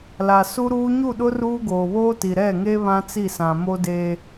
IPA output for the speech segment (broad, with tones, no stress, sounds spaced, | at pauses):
l a˨ s u˦ ɾ uː˦ ɲ u˦˨ ɗ ʊ˦ r uː˦ ɡ oː˨ β oː˦ t i˨ ɾ ɛ˦˨ ŋ e˦ β ã˦ t͡s i˦˨ s ã˨ m o˦ d eː˦